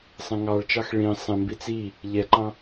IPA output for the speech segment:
sˤ ɛ̃ ŋ ɑ ɭ t͡ʃ ɑ x ɭ ĩ sˤ ẽ m b i t͡s i | ʎ ɛ ǃ ɑ̃

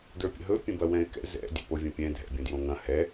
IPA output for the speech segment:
d ə˞ pʲ ə̰ ɦ ɵ pʲ ə̃ b ɐ w ɛ̃ ɪ̯ k ɛ̰ z ɛ̰ dʲ ɛ̰ p o vʲ ɐ̃ pʲ ɛ̃ dʱ ɛ̰ bʲ ə̃ d j õ ŋ ɐ̃ h ɛ

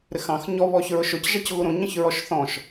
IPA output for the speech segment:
ɾ ɪ x ɑ̃ x ɲ ɔ β ɔ ç ɹ ʊ ʃ ʊ c ʒ ɑ c ɣ u ɾ ũ ɲ ə̃ ç ɹ ɔ ʃ θ ɔ̃ ʃ

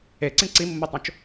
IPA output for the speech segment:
e ǀ ĩ ǀ i mː o tˤ õ t͡ʃ

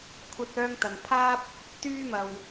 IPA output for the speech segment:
kʷʰ ɐ˧ t̚ œː˧ ŋ t̪ ɐ˨˩ n pʰ aː˥ p̚ | t̪ yː˥ m ɐ˨˩ w

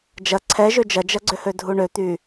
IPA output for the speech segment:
d͡ʒ ɐ ǀʰ ɛ ʒ ø d͡ʒ ɐ d͡ʒ ɐ ɡ͡ǀ ʏ h ø dʱ u ɳ ø t̪ y

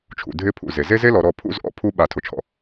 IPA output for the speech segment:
t͡ʃʰ ṵ˨ dʱ ɪ˦ pʰ ṵ˨ z e˨ z e˦ z e˦ l ɔ˨ ɾ ɔ˦˨ pʰ ṵ˦ z ʔ ɔ̰˦ pʰ u˦ ɓ a˨ tʰ ʊ˨ t͡ʃʰ ɔ̰˨

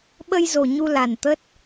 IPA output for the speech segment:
ɓ ə˧ j z o˨˩ ɲ u˧ l a˨˩ n t̪ ə˦˥ t̚

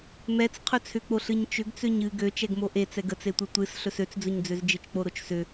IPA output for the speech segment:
m ɛ t͡s qʰ ɵ t͡sʰ ʏ k͡p o ɬ ɨ ɲ t͡ʃ ʏ ɡ t͡s ø ɲ ɨ ɡ ø t͡ʃ ɛ ɡ m o ʔ e t͡s ɛ ɡ ə t͡s e tʷ ɨ tʷ ɨ s ɬ ɵ s ø t͡s d͡z ɵ ɲ d͡z ø z d͡ʒ ɨ t͡ʃ k͡p o ɾ o t͡ʃ s ʏ

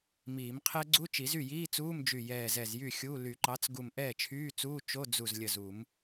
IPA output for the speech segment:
m iː˨˩˦ m qʰ ɛ˦˥ ɡ͡ǀ u˧˥˧ t͡ʃ i˨˩˦ z y˥˩ j iː˧˥˧ t͡s uː˧˥˧ m d͡ʒ y˧˩ j ɛː˧˩ z ɛ˧˩ z j y˥˩ xʲ u˧˥˧ l y˨˩˦ ǃ ɑ˩˥ t͡s ɡ u˧˩ m ʔ ɛː˥˩ t͡ʃʰ yː˧˥˧ t͡s uː˧˥˧ t͡ʃ o˧˥˧ d͡z u˧˩ z lʲ ə˧˩ z u˨˩˦ m

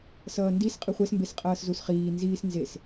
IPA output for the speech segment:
s ʌː n d i s qʼ ɯ χʷ ɛ s m b e s qʼ ʌː s z u s χ iː n z iː s n z e s

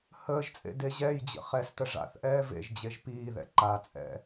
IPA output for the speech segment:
h əː ʒ t͡sʼ ḛ d e ʑ ɛ j d͡ʑ ə̰ χ ɛ s t ə ʐ a̰ θ ʔ ɛː v ḛ ʒ d͡ʑ e ʒ p iː ð ɛ̰ ǃ a t͡sʼ ɛ̰

